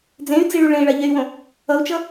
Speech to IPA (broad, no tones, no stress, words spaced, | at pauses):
d͡zẽy̯d͡ziɭu ɭẽi̯ɭaʎɛy̯wõ | ʌu̯t͡ʃʌ